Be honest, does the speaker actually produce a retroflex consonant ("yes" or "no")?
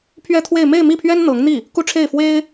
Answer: yes